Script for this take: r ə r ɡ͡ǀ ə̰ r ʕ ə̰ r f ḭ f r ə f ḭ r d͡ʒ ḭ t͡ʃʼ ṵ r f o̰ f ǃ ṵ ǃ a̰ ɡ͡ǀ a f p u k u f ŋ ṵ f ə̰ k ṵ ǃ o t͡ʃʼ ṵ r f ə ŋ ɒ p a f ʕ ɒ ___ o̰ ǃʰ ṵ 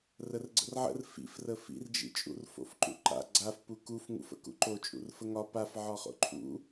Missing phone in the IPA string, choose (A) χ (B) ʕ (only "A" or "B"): A